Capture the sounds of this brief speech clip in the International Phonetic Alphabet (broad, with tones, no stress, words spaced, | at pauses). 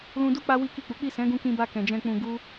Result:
lũ˧du˦ k͡pa˦wi˦ki˦˨k͡pu˨˦ k͡pi˦˨sɛ̃˨˦ɡũ˧kĩ˧ ba˧kɛ̃˨ d͡ʒɛ̃˧k͡pũ˧ɡu˦